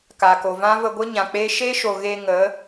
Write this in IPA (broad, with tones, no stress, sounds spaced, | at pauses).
k a˨ k o˨ v ã˦ v ə˧ ɡʷ ə˦ ɲ ã˨ k͡p e˦ ʃ e˦ ʃ o˨ ɣ e˧ ŋ ə˨˦